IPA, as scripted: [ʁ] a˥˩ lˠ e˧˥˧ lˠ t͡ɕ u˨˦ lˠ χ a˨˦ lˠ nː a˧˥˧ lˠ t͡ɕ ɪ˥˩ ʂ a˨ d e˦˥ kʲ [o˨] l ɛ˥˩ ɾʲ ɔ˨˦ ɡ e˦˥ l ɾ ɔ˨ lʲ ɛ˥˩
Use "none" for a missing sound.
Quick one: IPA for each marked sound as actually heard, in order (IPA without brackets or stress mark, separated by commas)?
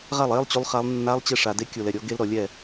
ʁ, o˨